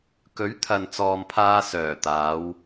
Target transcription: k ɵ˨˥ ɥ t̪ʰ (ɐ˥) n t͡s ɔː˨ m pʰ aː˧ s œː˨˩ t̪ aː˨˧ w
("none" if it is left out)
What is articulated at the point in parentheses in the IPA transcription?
ɐ˨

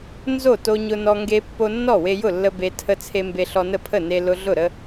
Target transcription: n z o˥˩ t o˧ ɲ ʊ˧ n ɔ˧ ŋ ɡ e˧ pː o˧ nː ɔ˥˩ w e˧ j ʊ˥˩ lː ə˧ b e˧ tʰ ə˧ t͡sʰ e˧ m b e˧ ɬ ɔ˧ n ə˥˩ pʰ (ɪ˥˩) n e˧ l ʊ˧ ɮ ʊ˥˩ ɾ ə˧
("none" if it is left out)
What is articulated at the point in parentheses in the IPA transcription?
ə˥˩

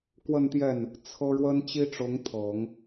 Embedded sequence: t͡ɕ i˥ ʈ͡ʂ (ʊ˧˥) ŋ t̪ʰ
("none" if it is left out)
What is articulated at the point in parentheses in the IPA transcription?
ʊ˧˥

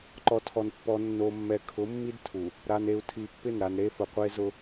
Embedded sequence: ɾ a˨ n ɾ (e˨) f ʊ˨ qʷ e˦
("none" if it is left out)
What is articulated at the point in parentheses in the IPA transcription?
e˦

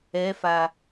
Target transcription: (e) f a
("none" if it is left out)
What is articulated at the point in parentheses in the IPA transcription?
ɛ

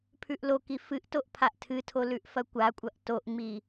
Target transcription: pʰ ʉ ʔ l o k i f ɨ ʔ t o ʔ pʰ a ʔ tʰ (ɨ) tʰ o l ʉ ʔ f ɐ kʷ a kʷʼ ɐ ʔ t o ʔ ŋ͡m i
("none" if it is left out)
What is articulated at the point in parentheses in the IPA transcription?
ɨ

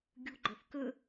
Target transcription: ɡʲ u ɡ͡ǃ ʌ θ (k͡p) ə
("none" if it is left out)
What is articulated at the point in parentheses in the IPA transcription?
k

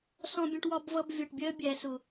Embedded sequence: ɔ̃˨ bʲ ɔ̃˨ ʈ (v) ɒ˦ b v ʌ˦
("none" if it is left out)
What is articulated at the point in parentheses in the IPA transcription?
w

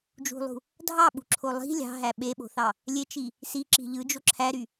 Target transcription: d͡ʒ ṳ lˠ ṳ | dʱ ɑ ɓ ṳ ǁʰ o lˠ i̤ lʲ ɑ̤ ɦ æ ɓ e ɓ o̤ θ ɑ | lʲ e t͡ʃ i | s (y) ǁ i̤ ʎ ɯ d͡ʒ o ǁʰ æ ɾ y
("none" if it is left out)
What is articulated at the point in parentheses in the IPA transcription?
i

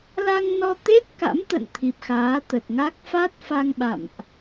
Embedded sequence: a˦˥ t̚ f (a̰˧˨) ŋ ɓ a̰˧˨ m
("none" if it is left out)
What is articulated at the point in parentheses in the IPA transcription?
a˧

